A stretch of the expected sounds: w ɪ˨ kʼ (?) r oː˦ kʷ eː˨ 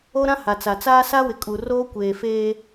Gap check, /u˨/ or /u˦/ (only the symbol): u˨